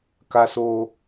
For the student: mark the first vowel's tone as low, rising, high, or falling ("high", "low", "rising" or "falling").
high